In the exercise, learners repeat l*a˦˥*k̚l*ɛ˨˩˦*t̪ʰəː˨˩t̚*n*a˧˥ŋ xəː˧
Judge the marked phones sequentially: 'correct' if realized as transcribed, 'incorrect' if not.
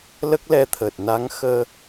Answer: incorrect, incorrect, correct

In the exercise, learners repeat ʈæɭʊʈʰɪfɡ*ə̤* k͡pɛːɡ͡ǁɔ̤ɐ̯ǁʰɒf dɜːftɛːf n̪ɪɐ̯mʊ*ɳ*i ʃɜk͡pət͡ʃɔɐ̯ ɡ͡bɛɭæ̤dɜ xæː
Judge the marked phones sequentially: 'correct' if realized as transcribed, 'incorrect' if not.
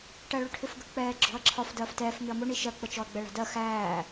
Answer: correct, correct

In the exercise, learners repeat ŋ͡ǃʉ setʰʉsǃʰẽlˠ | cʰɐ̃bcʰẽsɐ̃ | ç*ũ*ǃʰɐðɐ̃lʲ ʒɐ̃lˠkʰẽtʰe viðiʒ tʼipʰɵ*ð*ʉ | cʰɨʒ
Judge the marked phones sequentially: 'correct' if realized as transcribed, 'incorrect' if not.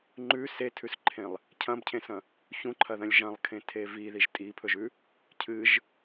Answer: correct, incorrect

